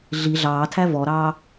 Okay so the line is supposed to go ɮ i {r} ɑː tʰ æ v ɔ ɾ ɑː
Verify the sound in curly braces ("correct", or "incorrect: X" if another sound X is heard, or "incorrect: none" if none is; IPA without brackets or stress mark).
incorrect: ɮ